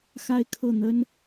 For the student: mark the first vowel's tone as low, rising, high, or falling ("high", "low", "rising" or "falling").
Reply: falling